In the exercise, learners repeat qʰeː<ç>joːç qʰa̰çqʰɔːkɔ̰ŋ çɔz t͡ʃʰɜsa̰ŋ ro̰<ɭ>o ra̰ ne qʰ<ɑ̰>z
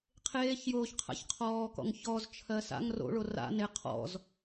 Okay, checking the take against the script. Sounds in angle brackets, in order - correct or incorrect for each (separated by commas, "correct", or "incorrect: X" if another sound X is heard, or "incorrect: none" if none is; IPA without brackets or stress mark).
correct, correct, incorrect: ɔ̰